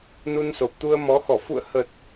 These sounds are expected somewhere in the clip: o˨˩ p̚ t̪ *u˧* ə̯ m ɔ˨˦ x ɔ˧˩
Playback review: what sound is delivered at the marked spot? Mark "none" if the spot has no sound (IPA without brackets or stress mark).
u˧